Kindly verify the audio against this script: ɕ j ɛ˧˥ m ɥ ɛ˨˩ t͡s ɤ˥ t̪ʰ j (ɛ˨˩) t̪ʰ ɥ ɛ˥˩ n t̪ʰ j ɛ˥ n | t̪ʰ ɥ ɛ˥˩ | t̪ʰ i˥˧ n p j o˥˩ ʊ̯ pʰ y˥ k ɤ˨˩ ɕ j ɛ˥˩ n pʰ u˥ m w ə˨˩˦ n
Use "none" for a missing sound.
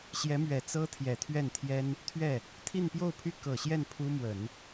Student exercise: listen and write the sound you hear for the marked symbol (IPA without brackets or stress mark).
ɛ˨˩